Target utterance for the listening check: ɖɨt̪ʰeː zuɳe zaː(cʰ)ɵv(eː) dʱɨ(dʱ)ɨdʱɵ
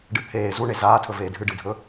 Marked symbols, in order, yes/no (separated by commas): no, yes, no